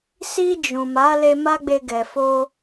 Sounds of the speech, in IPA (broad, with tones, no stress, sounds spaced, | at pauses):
s i˧ d͡ʒ ũ˨ m a˨˦ l e˧ m a˦ ɡ͡b e˧ ɡ ɛ˨ f o˧